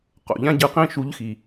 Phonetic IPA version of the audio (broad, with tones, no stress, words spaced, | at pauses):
qo̰˩ʎã˥ɟɯ˧ qĩ˥ʃu˧˥ʎxi˩